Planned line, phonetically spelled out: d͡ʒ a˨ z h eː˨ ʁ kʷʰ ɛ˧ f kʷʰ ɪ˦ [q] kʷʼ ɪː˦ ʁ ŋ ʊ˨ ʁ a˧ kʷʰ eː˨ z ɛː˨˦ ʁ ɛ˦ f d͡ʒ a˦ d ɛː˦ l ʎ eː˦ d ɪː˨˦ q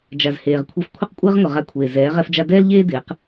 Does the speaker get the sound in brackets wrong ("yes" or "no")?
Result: no